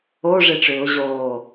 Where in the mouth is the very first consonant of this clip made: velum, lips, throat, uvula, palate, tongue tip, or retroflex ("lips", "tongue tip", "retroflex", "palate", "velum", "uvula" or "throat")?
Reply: retroflex